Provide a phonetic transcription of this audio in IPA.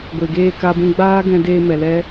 ɡʷ e˨ ɡ eː˦˨ k a˧ b ũ˧ ɡ͡b aː˦ ɡ ɛ̃˧ d eː˧ m ɛ˨ l ɛ˦

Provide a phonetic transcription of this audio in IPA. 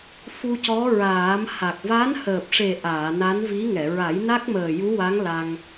f u˧ c ɔ˧˥ ɹ aː˨˩˦ m h a˨˩ k̚ v a˧˥ n h əː˨˩ p̚ ʂ e˨˩ ʔ aː˨˩˨ n a˧˥ n v i˧˥ ŋ ɛ˨˩˨ ɹ a˨˩˦ j n a˦˥ k̚ m əː˨˩ j u˧˥ w a˧˥ ŋ l a˧ ŋ

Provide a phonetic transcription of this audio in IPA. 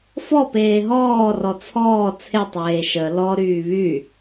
f ɔ p eː ɦ ɔː r ɔ t͡sʰ ɔː t͡sʰ e tˤ eː ʃ ə l ɔ ɾ yː β y

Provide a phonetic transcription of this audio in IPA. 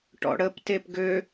ʈ ɔ̰ ɽ ə p t e p ɡ ø

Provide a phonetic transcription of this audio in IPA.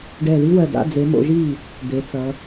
ɖ ɛ˧˩ ð i˥ w ɜ˧˩ d a̰˧˥˧ d͡z e˨˦ m o̰˨˦ ʒ i˥˩ | d̪ e˨˦ t͡s ʌ˨˦

